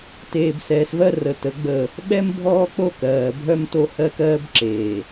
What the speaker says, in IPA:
t eː˨ b s ɛː˨ s v ɜ˦ r ə˨ t ə˨˦ ɡ͡b ə˦˨ | ɓ ɛ˦ m bʱ ɔː˦ k͡p o˦ k ɜː˨ bʱ œ˦ m t o˦ h ɜ˦ k ɜː˦ b ǁ eː˨

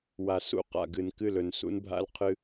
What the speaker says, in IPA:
w a˨ s ṵ˨ q a̰˨ ɡ ɨ˨ n k ɨ˦˨ l ɵ˨ n s ṵ˦ n bʱ a̰˦ l qʰ ɨ˦

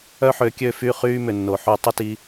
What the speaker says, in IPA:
œ˦ ħ ø˧ kʲ ø˦˨ f y˦˨ χ yː˦ m ʏ˨ nː o˨ ħ y˧ tˤ ɪ˦ t i˧

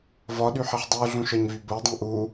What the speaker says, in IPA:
v ɒ ɗ y ħ e ħ dˤ u ɮ ũ ʃ ɒ ɲ v y b o dˤ ũ ʔ u

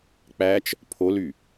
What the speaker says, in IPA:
k͡p æ t͡ʃ | pʰ o l y

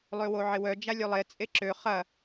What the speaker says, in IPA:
lˠ ø w o ʕ ɪ w œ d͡ʒ a lʲ ø lˠ e t͡sʼ e ǁ ø χ ɐ

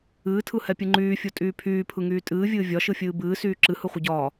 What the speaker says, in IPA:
ɨː tʰ ɯ h ɛ pʲ ɯ ŋ͡ǃ yː fʲ o tʼ yː pʰ yː pʰ ɯ ŋ yː tʼ ɨː vʲ ɨː vʲ ɒ ʃ ɯ fʲ ɨː b ɨː s yː ǁ ɨ h ɯ χʷ ə ɟ ɒː

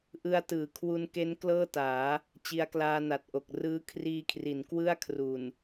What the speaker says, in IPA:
ʔ ɯ˦˥ a̯ t ɯː˨˩ kʰ w u˧ n k e˦˥ n k l ɤː˥˩ t aː˩˦ | t͡ɕ i˧ a̯ k l aː˧ n a˨˩ t̚ ʔ o˨˩ k̚ r ɯː˦˥ kʰ r iː˧ kʰ r i˩˦ n k w ɯ˥˩ a̯ kʰ r u˨˩ n

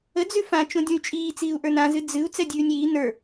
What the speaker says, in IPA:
ə d͡z ʉ f ã t͡ʃ õ dʲ õ y̯ t͡ʃʼ iː t͡s iː u̯ ʔ ə˞ n ã z ɨ d͡z ɨ u̯ t͡s ɛ dʲ ʉː nʲ iː n ə˞

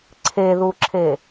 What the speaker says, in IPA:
ǀʰ e ð u ǁʰ e

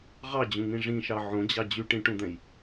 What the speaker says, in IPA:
ʁ ɑ d͡ʑ ũ ŋ ĩ ʐ ĩ ʃ ɑ ʕ õ d͡ʑ ɑ d͡ʑ y ʈ ĩ ʈ ũ d̪ ɛ̃ j

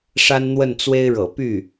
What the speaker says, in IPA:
ʂ a˥ n n̪ w ə˥˩ n t͡s w e˥ ɪ̯ ɻ ɤ̰˨˩ p y˥˩

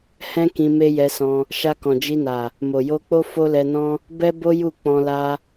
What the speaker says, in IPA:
h ɛ̃˦ k ĩ˧ m e˦ j ɛ˧ s ɔ̃˧ | ʃ a˧ k ɔ̃˨ d͡ʒ i˧ n a˨ | m o˨ j o˧ k͡p o˦ f o˦ l ɛ˧ n ɔ̃˦ | b ɛ˦ b o˦ j u˦˨ k͡p ɔ̃˧ l a˦

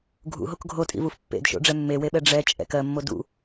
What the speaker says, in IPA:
ɡʱ ṵ ɦ o k ɡʱ o tʼ ḭ v u f pː ḛ d ʃ o̰ ɖ͡ʐ ɛ mː e w e ɓ ɛ ɖ͡ʐ ɛ t͡ʃʼ ɛ̰ k ɜ mː o d ṵ

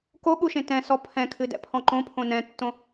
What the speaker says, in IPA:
k o ɠ u ʃ ẽ t ɛ̃ s ɔ pʰ ɛ̃ kʰ ɨ d ɛ̰ pʰ ɔ̃ ǃ õ pʰ õ n ɛ̃ tː õ

